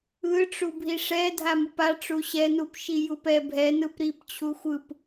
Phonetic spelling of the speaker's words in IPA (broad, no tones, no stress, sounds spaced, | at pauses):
ɯ ʈ͡ʂ u bʱ i ʂ ɛ dʱ a m ɯ p a ʈ͡ʂ u ɕ ɛ n u p ʃ i j u p ɛ bʱ ɛ n ɯ p ɾ i p t͡ɕʰ u xʷ ɯ p